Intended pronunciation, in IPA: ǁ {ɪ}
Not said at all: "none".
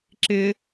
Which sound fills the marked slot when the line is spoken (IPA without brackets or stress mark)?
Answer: ɪ